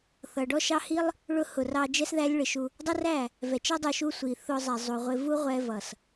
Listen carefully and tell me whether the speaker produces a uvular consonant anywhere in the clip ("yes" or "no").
yes